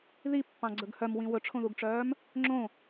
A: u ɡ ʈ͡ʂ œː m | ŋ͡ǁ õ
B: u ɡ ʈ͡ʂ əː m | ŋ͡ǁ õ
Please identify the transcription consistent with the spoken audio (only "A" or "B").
A